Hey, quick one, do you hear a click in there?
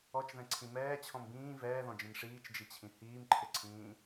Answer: yes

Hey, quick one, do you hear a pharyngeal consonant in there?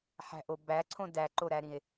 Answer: yes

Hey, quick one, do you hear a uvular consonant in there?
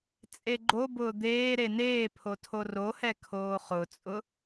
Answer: yes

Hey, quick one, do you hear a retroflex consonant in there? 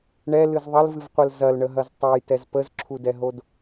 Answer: yes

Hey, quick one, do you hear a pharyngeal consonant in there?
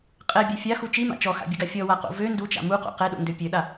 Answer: no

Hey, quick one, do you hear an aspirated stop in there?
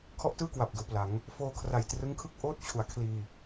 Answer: yes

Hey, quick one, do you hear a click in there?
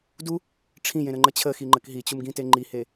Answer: yes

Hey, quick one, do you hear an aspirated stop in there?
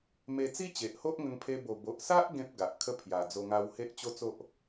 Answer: yes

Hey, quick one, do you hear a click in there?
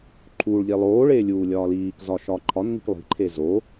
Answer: yes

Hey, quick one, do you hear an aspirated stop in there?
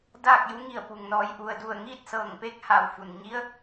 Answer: no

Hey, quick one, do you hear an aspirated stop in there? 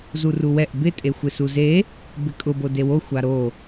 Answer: no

